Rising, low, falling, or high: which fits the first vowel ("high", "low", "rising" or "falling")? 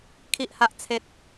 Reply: high